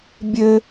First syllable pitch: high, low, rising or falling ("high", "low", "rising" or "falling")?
high